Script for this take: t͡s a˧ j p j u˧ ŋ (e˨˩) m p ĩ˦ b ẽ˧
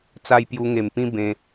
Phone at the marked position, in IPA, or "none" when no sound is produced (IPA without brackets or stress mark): e˨˩